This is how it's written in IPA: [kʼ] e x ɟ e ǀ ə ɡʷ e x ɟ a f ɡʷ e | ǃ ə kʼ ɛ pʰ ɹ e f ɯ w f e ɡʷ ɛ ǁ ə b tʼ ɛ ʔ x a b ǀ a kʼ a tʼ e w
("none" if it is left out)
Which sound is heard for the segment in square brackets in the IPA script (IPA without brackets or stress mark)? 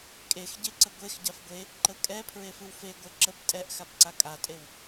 kʼ